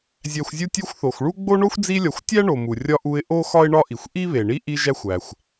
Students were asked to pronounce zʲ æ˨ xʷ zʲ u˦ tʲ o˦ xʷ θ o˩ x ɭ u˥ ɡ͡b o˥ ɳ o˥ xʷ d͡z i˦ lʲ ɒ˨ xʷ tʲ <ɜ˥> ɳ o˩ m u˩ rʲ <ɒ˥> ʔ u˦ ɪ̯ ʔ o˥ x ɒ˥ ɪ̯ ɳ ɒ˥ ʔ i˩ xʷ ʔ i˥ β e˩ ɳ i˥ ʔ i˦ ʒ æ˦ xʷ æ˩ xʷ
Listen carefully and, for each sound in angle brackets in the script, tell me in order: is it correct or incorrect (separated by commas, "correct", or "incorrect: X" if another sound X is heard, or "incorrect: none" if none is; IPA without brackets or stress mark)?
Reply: incorrect: æ˥, correct